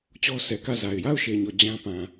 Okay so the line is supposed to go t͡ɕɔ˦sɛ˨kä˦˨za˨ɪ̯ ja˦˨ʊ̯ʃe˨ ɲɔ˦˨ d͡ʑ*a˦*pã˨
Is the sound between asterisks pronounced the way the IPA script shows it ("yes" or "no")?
no